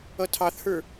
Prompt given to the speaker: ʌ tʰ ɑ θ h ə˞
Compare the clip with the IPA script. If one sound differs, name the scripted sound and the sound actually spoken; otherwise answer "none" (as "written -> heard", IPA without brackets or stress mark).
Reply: none